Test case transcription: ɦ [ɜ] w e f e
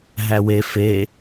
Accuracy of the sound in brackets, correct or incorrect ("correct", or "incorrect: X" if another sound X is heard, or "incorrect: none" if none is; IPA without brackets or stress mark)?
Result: incorrect: æ